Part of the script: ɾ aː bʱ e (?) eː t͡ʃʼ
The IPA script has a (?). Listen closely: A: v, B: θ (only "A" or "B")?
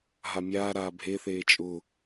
B